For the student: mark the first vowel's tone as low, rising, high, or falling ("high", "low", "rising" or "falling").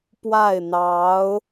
falling